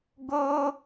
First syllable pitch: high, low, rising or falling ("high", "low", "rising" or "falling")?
high